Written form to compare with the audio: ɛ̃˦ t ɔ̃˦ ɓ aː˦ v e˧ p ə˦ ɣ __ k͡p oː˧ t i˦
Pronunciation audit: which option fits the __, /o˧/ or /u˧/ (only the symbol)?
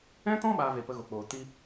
o˧